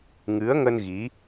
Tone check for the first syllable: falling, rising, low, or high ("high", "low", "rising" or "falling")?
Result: rising